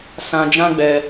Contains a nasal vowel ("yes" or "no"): yes